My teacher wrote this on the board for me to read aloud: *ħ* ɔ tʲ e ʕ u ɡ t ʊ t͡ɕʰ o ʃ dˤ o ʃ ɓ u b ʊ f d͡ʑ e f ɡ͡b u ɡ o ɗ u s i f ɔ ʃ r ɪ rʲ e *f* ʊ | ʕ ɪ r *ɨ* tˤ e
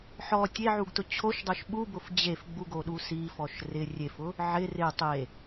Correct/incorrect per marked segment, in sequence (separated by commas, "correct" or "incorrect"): correct, correct, incorrect